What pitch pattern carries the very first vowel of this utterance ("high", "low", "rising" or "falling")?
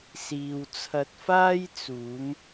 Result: low